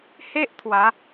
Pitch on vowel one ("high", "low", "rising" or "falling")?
high